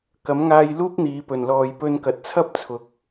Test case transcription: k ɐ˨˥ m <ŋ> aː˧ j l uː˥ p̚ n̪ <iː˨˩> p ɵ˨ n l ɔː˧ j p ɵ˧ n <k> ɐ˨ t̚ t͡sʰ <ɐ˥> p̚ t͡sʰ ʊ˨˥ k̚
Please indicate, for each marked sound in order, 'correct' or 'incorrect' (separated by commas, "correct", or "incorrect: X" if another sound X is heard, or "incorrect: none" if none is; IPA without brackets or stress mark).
correct, incorrect: iː˨˧, correct, correct